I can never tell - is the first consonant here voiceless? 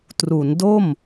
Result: yes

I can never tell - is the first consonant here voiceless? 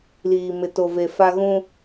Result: no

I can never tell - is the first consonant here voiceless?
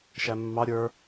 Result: yes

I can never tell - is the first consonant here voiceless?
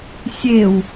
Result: yes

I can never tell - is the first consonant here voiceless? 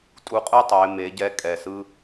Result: yes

